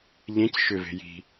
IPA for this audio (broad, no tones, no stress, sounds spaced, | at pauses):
ʎ ẽ c ʃ ʏ v e̤ j i̤